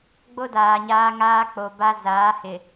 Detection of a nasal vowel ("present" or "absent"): absent